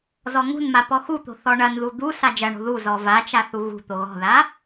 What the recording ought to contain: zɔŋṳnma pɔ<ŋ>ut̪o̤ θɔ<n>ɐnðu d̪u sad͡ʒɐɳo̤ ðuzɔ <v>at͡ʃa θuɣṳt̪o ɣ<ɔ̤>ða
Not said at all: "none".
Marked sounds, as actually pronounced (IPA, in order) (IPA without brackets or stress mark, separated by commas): x, ɳ, v, ɔ̤